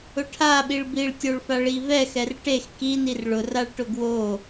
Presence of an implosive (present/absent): present